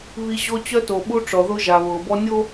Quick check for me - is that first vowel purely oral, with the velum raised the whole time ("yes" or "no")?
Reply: yes